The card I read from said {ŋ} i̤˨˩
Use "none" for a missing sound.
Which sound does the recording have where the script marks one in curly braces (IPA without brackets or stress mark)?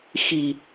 x